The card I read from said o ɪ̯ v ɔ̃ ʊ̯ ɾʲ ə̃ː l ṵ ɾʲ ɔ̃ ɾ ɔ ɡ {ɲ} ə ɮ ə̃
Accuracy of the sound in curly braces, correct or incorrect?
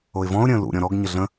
correct